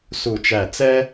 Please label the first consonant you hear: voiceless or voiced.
voiceless